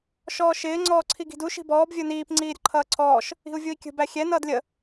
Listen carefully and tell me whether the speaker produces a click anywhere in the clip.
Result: yes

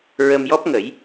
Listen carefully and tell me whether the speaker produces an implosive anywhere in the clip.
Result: no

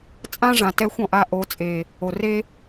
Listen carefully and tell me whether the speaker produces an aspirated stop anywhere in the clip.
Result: no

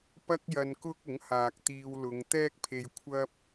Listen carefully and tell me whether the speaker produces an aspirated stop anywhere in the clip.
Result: yes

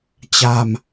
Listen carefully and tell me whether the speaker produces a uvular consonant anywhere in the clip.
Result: no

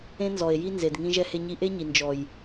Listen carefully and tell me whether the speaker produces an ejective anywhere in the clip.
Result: no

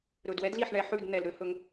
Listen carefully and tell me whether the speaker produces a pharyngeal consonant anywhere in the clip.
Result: yes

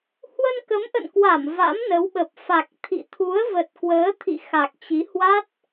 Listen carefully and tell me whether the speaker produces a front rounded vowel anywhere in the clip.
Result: no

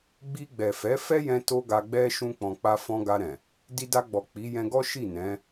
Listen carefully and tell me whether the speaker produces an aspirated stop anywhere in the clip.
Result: no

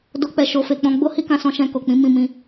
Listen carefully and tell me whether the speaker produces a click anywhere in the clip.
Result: no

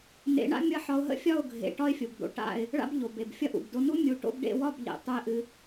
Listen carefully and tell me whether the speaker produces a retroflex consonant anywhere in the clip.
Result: yes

